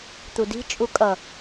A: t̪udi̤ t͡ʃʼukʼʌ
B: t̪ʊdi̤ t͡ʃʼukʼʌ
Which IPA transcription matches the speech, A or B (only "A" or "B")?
A